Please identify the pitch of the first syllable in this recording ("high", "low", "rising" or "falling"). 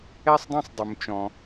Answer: high